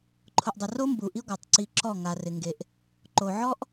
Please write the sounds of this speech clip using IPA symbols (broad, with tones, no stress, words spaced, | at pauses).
ǃʰʊ˨ʔdˤɪ˨ro˦ mbu˨ʔi˦ɡʷa˨tˤ ǀi˦ ǁɔ˦˨ŋa˨rɪ˨ ŋɡe˨ʔ | ǃo˨ʕɔ˦ʔ